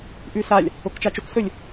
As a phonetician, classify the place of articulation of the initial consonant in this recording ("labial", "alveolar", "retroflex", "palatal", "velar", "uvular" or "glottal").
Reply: glottal